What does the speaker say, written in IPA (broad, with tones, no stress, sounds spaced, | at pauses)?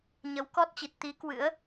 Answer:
ɲ ə˨˦ w k ɔ˦˥ t̚ t͡ɕ i˨˩ t̚ t̪ i˨˦ k w ɨ̰˧˥ ə̯